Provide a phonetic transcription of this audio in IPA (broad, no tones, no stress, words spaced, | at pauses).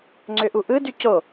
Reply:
ŋ͡ǀøʔuʔɯdy co